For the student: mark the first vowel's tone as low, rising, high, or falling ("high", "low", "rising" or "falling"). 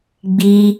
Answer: high